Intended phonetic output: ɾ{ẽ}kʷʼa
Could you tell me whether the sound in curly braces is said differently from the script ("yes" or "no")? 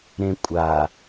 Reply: no